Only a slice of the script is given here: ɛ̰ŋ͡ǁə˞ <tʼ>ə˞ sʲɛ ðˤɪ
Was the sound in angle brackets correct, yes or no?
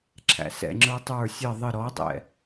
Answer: no